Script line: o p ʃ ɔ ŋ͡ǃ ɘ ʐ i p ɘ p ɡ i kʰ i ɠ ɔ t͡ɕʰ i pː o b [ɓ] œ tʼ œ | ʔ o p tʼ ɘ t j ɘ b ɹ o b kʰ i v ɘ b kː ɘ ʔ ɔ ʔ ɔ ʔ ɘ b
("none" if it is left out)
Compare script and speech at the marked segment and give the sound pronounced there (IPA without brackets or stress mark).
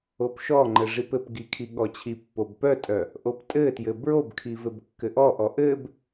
p